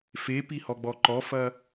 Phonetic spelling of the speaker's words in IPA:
fepihɔɡ͡bɔ ǃɔfɐ

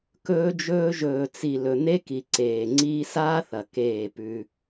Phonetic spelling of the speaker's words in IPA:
kɵː˦d͡ʒɵː˦ ʒɵː˨t͡si˨ lɵ˨n̪e˦ki˨ ǀeː˨ŋ͡ǀiː˦ saː˦θɐ˨ keː˦˨pʉ˦

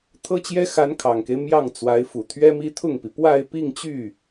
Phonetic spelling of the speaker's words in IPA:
t̪ʰɤ˥t͡ɕjɛ˥ xa˧˥nkʰɑ˨˩ŋke˦ɪ̯ mjɑ˥˩ŋ t͡swa˧˥ɪ̯fu˨˩t̪ʰɥɛ˥mi˥ t̪ʰʊ˥˩ŋpi˩ pwa˥˧ɪ̯pi˥˧ŋt͡ɕy˥˩

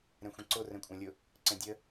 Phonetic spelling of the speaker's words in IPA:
ɾɛ̃xʷɛ̃ǀo rɛ̃kʷʼæ̃lʲʊ | ǀɛ̃dʲə

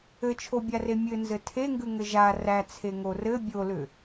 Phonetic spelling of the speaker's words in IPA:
ɘt͡ʃʰobʲare mʲɘnzɘ tʰeŋɡʉŋɘ ʒa ræt͡sʰeŋo rɘ bʲolʏ

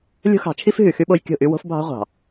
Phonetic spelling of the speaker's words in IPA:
lʲo̤˦xɑ̤˨˦t͡ʃʰi˦fɦy˨ xy˦ɓo˦jkʲo̤˦˨ʔy˦ wo̤˦fbʱɑ̤˦ʁʷɑ̤˨

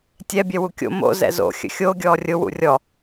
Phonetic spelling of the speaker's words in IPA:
tʲɛ bʲɛwukʲo̰ mo̰ zɛ̰zo̰ xʲə̰xʲo ɡʲɔːrʲʊ wṵrʲɔ

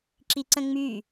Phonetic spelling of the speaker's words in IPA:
ǁiǀə̃ŋ͡my

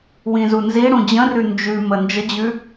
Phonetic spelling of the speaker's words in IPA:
wĩzunziɽũ d͡ʑə̃rʉ nd͡ʒʉ mənd͡ʒəd͡ʑʉ

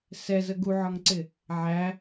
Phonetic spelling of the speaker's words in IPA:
sɛzə ɡuʕɒŋǀɪ | ʕæ

